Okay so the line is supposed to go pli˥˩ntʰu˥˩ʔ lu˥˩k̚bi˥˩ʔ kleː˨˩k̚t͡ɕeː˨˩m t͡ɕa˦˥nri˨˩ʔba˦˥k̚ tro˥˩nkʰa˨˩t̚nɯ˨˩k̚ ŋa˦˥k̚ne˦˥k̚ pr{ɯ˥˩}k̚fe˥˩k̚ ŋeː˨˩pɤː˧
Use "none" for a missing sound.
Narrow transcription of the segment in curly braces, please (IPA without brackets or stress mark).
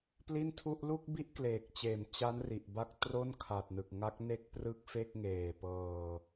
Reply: ɯ˥˩